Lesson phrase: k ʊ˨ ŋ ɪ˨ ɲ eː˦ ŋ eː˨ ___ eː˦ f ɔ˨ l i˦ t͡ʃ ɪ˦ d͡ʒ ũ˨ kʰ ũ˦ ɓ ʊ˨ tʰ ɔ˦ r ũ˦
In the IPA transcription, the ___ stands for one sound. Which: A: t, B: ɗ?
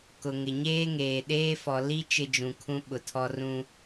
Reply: B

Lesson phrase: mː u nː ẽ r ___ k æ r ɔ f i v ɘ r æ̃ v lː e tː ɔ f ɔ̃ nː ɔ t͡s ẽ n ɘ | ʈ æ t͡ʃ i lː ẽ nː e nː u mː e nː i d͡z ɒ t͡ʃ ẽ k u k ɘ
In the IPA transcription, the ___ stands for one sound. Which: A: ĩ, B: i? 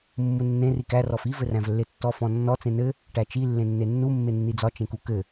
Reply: B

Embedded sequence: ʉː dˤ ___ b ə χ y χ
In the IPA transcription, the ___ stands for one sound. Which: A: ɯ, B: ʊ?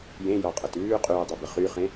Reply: B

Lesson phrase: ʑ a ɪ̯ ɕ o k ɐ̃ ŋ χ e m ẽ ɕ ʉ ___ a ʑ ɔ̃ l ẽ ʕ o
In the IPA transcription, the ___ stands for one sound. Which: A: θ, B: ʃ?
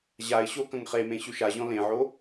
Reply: B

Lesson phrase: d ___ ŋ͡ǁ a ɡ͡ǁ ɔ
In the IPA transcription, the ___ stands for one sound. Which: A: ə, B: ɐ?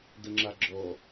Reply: A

